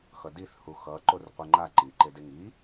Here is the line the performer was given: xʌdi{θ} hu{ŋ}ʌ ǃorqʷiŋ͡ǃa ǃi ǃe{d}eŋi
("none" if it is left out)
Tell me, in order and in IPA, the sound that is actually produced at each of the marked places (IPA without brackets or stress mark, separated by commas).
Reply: θ, x, d